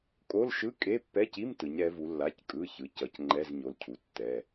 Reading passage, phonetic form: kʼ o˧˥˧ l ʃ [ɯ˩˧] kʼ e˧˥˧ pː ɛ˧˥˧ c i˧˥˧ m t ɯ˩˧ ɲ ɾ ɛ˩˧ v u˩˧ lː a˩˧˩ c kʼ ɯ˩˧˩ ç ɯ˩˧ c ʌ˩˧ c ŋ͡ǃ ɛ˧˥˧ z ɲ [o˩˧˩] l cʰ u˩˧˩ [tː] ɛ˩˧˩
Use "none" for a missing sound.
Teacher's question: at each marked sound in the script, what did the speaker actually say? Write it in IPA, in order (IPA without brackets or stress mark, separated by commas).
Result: ɯ˧˥˧, o˩˧˩, tː